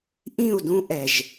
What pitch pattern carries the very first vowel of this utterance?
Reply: falling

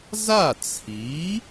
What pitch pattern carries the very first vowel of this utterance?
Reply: falling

